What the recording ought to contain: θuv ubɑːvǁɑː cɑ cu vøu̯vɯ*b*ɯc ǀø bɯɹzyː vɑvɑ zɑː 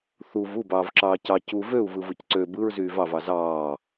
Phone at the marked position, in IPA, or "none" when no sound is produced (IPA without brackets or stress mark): v